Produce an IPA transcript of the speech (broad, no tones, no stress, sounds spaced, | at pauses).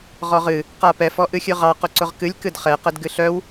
ʁ ɔ ʁ ɨ | q a p ɛ f ɔ ʔ ɨ xʲ ɨ ʁ ɑ q ʊ ǀ ʊ ʁ k ɨ lʲ k ɨ d χ ɛ q ɛ d ɡ ɨ ɬ œ w